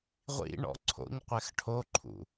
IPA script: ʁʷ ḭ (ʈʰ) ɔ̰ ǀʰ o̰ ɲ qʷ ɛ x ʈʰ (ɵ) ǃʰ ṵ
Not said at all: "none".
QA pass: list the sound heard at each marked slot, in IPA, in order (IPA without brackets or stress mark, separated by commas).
ɳ, o